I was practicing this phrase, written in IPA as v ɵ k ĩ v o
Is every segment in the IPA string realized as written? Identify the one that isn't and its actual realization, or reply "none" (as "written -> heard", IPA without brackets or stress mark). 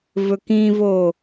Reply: none